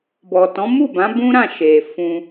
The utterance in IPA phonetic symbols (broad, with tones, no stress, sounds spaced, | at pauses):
b ɔ˨ t ɔ̃˨˦ m u˦˨ b ã˨˦ b ũ˦ ɾ ã˦˨ ʃ e˨ f ũ˧